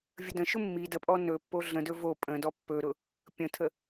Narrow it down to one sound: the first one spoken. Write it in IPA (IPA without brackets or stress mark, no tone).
vʲ